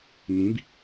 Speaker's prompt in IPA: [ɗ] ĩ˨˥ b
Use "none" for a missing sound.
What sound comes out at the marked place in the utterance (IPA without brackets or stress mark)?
n